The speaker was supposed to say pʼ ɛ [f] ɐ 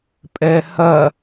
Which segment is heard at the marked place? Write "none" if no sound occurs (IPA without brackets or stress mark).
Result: h